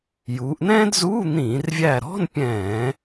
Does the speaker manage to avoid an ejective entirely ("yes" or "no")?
yes